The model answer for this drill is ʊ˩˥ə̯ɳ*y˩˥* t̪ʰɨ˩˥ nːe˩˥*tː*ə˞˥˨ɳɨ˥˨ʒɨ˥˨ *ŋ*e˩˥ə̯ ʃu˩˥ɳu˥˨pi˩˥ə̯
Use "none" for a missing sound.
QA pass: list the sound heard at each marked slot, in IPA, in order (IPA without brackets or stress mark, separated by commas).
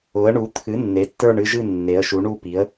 u˩˥, tː, nː